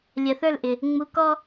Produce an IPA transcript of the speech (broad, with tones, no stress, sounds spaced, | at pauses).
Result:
lʲ ɜ˨ θ ə˞˦˨ l ʔ ɪ˨ | ŋ͡m u˧ k ɔ˦